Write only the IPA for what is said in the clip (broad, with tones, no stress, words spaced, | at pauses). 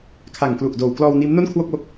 kʰa˨˩ŋklu˨˩ʔ doː˨˩wklɔː˧w niː˦˥mno˥˩nkʰwo˥˩k̚wo˦˥k̚